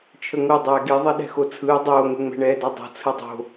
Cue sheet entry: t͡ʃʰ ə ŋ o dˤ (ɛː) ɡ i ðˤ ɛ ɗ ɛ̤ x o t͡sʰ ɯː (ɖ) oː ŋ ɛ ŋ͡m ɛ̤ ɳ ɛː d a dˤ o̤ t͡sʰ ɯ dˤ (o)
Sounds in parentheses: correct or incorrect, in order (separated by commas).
correct, incorrect, incorrect